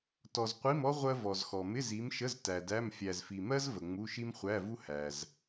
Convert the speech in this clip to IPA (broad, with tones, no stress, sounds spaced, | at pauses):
t ɔ˨ z qʷ i˧˥˧ m ɔ˥ ʁʷ ɜ˥ v ɔ˨ z x ɔ˨ m ɪ˧˥˧ z i˨˦ m ʃ ə˧˥˧ z t æ˨ d æ˧˥˧ m fʲ æ˨ z f i˨ m ɜ˥ z v ə˨ ŋ͡m u˧˥˧ ʃ i˥ m χʷ æ˧˥˧ v u˥ h æ˨ z